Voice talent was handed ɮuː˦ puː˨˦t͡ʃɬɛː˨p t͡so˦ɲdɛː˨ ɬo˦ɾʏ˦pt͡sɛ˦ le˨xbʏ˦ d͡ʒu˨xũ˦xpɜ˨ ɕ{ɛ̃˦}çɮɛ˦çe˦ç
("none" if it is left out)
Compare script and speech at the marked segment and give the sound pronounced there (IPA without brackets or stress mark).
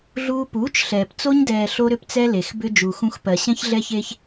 ɛ̃˦